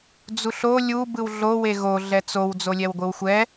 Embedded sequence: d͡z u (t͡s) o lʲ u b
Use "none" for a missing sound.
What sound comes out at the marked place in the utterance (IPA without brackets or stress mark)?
ɬ